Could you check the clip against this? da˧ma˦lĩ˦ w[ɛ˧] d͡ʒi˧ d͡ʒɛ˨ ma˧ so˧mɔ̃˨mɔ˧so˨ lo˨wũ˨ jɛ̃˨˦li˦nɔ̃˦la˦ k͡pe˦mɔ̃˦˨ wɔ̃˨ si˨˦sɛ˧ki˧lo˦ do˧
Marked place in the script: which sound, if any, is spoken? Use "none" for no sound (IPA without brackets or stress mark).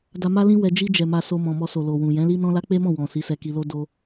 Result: ɛ˧